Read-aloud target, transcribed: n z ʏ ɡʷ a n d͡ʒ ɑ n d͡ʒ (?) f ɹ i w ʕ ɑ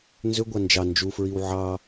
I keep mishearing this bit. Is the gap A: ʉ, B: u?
B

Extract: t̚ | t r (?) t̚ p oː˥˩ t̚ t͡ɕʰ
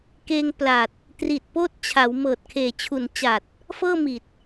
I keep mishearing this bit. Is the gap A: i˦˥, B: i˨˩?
B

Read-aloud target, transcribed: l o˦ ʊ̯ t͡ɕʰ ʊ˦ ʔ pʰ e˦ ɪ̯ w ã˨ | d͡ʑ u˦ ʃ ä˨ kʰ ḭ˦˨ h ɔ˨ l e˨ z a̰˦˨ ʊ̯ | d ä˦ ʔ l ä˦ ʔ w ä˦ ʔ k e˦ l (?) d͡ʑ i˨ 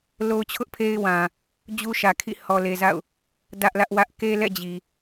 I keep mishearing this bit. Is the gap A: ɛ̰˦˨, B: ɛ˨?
A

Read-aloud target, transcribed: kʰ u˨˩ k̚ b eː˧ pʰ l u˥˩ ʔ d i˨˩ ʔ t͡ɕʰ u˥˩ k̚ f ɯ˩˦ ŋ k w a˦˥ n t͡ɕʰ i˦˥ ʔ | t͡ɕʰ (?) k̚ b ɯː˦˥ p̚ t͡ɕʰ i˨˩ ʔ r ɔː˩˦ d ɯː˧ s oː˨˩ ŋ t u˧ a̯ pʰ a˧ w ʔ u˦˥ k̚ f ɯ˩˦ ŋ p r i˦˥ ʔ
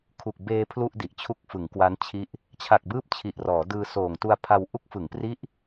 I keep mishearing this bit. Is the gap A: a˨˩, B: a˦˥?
A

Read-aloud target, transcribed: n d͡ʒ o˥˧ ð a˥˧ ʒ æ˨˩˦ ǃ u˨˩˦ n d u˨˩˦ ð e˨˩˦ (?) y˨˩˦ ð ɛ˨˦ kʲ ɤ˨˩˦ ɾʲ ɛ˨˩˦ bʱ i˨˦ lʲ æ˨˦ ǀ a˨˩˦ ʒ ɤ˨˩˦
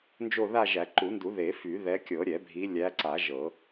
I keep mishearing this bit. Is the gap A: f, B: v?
A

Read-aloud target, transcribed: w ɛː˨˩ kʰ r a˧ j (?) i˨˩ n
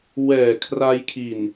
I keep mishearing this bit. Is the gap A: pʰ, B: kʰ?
B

